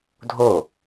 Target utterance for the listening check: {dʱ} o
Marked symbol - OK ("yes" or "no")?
yes